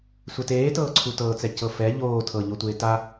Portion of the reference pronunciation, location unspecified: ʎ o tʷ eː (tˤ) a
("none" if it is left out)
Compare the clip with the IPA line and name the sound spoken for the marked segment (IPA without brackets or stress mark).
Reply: t